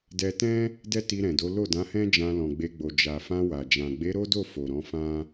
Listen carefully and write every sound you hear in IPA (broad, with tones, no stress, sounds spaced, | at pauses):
d ɛ˧ t ɛ̃˦ | d ɛ˦ t i˧ ɾ ɛ̃˨ d o˨˦ l o˦˨ d ã˨˦ h ɛ̃˦ d͡ʒ ã˧ l ɔ̃˨ ɡ͡b e˧ ɡ͡b o˨ d͡ʒ a˨ f ã˧ w a˨ d͡ʒ ã˨ ɡ͡b e˨˦ ɾ o˦ d o˦˨ f o˨ ɾ ɔ̃˨˦ f ã˦